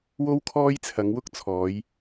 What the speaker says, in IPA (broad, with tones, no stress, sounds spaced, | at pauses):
w o˥ w kʰ ɔː˥ j t͡sʰ ɐ˨˧ ŋ w ʊ˥ k̚ t͡sʰ ɔː˨˧ j